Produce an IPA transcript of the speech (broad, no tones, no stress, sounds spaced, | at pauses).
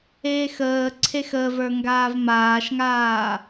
eː x əː ǀʰ e x ə v ə˞ ŋ ɡ aː v m aː ʃ ŋ aː